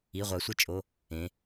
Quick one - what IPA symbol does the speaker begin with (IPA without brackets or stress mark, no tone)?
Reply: i